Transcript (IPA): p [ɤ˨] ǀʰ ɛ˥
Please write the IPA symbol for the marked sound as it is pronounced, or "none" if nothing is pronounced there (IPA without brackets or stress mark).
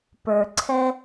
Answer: ə˞˨